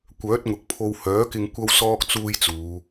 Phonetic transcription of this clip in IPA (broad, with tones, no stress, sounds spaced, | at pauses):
kʷ œː˨˥ t̚ ŋ ʊ˨ k̚ pʰ o˧ w h œː˨˥ k ɪ˧ ŋ kʷ ɐ˥ w s ɔː˥ k̚ t͡s uː˥ j t͡s uː˨˧